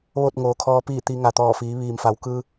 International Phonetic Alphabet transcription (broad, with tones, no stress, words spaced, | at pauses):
ʋo˥˨t̚ŋoː˩˧ kʰɔː˧˥piː˥˨t̪i˧ ŋa˩t̪ɔː˧˩fiː˩˧ ʋiː˩mfa˩˧wkɯː˧